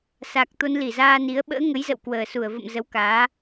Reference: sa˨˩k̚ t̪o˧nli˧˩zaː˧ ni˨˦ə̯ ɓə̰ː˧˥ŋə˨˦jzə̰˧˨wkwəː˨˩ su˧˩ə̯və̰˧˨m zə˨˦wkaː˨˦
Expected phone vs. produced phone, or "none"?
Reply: none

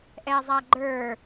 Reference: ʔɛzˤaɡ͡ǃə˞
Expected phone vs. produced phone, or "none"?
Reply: none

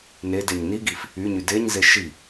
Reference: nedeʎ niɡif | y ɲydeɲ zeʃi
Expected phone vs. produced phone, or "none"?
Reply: ʎ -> ɲ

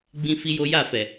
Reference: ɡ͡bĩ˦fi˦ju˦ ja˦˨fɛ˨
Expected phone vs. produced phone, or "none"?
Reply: u˦ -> o˦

